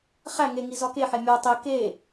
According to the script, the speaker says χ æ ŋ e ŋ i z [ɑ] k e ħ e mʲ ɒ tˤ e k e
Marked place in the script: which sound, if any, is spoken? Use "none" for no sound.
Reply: ɒ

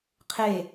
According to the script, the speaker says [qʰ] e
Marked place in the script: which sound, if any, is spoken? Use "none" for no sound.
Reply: qʰ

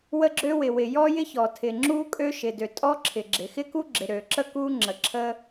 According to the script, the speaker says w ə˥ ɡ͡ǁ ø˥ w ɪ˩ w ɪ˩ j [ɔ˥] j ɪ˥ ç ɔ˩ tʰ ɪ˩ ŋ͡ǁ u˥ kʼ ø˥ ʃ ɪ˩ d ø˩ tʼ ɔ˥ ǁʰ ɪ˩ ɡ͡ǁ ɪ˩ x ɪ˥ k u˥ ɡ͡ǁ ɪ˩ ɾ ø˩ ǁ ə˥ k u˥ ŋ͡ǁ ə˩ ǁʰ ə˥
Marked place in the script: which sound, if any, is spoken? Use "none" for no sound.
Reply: ɔ˥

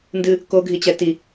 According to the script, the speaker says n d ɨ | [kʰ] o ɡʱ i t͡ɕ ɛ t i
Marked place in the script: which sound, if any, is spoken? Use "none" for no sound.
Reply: k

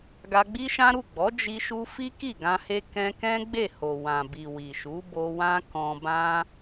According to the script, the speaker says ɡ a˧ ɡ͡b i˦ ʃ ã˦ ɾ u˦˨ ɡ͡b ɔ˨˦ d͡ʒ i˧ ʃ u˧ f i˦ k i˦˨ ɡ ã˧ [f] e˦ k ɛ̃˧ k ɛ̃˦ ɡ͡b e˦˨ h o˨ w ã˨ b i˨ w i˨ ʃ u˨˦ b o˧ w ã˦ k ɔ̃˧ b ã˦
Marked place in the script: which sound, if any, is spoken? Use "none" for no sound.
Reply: h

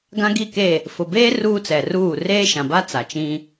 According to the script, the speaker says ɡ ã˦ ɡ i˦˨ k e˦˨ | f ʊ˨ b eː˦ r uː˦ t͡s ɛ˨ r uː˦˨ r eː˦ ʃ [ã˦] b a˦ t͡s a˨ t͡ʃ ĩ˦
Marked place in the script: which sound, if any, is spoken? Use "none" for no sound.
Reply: ã˨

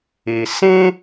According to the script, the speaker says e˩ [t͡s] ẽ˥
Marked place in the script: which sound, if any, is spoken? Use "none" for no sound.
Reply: s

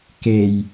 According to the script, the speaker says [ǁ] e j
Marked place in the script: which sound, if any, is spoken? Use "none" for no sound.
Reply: k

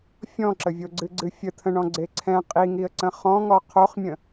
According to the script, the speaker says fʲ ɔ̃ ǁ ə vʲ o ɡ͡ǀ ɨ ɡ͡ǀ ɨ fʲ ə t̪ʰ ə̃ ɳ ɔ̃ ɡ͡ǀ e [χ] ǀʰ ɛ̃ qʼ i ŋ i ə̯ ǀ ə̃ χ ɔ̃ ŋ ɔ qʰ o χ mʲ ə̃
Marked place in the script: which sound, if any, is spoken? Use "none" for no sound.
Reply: none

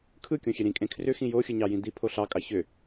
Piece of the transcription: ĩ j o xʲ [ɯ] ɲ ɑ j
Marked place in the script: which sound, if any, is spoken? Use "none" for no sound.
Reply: ɯ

